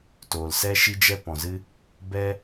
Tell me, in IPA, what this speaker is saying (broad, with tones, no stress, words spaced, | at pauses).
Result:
toː˨lsɛ˦ʃi˦ d͡ʒɛ˦pɔ̃˨zɨ˦ | bɛ˦